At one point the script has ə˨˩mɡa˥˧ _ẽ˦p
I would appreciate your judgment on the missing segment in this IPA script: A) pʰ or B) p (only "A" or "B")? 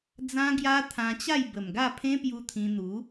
A